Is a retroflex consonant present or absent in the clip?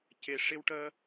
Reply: present